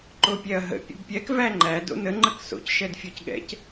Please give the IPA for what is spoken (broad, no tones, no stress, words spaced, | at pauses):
ǃopʲɛɐ̯ɦə̰ pʲə̰bpʲɛk væŋ͡ǃæ do̰nə ŋ͡ǃəkso̰c ʃɛdfʲɔcɠɛ̰c